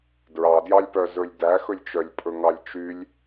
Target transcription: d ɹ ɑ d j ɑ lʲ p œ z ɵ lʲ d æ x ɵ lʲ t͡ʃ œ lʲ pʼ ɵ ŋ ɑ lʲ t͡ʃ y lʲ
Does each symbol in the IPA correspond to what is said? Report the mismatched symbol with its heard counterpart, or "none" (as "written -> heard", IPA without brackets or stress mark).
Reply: none